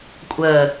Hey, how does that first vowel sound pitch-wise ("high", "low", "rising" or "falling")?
low